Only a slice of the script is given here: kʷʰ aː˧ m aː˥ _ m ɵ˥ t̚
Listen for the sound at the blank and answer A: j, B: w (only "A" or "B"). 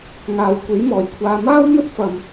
B